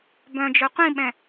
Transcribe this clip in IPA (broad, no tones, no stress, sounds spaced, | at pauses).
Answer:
b œ̃ d͡ʒ œ qʷ ĩ ɓ ɛ̃